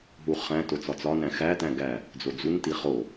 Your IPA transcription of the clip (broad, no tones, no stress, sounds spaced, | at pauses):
ɦ u χ æ̃ t o t͡s ɒ t͡s ɒ n æ̃ x æ t æ̃ ɡ æ | d͡z o d͡z u n t i χ o